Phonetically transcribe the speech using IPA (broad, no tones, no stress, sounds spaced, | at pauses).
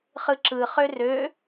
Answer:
χ ɯ ǁ ɯ χ ø r ø